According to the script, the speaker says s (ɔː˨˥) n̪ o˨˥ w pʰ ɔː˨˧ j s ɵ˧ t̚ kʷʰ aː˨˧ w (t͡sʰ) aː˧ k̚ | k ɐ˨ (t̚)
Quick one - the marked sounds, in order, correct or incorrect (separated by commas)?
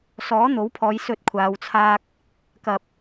correct, correct, incorrect